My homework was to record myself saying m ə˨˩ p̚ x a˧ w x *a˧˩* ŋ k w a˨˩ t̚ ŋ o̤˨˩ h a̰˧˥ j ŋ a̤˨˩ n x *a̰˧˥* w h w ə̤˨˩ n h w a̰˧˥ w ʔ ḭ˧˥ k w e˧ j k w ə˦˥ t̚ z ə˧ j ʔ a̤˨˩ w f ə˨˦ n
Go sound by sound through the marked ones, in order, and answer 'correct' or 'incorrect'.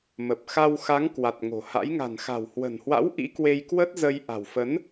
incorrect, incorrect

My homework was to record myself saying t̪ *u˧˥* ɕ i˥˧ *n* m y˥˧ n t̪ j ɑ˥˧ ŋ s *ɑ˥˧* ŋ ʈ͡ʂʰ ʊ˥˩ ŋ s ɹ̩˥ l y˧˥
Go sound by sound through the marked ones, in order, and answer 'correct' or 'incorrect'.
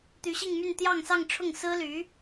incorrect, incorrect, correct

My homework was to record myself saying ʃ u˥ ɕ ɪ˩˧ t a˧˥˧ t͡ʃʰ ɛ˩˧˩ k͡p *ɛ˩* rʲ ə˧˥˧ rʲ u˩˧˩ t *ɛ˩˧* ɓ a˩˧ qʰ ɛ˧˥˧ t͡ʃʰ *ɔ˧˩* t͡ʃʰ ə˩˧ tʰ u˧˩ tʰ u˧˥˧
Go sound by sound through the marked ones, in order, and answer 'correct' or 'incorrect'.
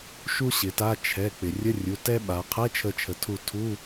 incorrect, incorrect, incorrect

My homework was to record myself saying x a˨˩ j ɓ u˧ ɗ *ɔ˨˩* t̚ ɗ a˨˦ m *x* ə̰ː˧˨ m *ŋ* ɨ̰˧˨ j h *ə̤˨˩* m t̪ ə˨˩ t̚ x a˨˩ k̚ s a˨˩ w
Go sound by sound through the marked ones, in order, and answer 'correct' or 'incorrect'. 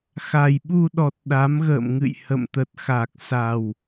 correct, incorrect, correct, incorrect

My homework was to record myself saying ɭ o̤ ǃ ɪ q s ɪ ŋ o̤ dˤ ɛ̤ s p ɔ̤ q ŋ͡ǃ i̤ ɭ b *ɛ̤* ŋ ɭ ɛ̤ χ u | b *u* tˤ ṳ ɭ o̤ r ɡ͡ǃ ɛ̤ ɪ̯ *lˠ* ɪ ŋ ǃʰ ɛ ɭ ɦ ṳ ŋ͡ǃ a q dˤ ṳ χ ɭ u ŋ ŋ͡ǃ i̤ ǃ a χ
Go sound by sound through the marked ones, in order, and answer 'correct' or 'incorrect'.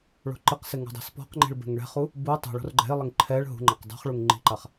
correct, correct, correct

